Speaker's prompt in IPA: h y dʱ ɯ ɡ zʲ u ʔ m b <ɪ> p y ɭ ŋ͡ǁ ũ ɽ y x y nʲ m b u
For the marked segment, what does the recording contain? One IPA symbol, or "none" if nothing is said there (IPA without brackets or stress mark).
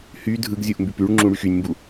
y